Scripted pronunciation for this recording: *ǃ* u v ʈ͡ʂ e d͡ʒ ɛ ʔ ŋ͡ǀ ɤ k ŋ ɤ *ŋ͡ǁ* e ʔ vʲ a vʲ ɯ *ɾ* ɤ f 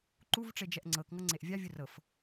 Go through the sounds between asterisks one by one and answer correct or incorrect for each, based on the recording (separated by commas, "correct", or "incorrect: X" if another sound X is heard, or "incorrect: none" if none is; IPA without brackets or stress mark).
correct, incorrect: ŋ͡ǀ, incorrect: r